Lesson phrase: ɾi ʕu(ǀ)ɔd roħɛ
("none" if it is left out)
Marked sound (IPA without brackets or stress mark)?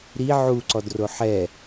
ǀ